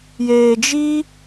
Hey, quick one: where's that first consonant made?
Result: palate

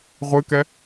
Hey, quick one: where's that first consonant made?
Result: uvula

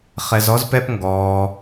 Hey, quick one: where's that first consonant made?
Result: uvula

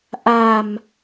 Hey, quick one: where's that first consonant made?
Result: throat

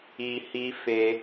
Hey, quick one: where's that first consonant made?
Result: throat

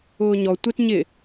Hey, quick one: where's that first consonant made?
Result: palate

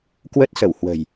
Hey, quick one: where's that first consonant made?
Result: velum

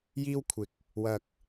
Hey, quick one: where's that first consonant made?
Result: palate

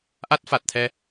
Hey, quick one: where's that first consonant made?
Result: throat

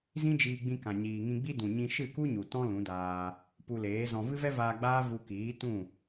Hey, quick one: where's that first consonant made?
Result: tongue tip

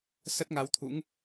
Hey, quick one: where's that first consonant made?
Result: tongue tip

